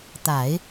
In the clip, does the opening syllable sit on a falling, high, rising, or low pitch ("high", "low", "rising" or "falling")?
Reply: low